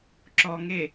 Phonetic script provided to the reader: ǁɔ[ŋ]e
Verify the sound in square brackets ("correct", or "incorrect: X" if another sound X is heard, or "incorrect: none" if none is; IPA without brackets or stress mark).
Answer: correct